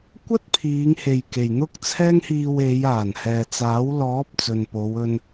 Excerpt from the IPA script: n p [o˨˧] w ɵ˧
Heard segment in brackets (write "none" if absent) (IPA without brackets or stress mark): o˨˧